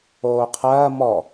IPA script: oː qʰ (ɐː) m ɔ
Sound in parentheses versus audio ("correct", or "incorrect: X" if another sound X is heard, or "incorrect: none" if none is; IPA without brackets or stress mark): correct